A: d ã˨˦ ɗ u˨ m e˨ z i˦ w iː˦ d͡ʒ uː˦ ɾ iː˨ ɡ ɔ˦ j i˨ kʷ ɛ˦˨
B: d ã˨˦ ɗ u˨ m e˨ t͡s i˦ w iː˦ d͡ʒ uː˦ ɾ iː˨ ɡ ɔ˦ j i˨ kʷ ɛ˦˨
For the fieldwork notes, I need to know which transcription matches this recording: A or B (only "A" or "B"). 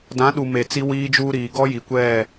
B